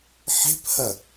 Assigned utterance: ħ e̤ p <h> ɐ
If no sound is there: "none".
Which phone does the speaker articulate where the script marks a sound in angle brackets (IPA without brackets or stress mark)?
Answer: h